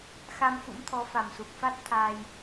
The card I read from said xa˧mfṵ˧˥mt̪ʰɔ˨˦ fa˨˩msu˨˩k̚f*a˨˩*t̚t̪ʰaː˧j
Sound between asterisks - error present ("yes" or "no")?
yes